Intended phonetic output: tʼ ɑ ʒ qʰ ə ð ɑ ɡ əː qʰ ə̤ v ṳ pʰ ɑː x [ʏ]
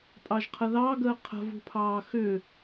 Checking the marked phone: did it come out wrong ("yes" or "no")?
no